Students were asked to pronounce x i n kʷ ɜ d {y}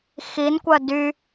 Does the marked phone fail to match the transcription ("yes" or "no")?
no